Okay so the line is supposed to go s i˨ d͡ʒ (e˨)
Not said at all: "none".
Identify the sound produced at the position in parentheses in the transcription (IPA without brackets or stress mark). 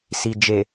e˨